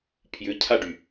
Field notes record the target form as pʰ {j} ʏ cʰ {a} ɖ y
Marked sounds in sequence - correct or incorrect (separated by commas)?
correct, correct